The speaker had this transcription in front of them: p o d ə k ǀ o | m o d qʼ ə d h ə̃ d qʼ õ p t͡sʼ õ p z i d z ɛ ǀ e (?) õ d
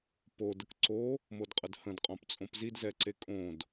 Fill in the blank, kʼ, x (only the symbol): kʼ